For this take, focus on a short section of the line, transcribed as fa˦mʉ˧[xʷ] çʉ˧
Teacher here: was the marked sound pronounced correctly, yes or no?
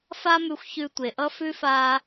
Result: yes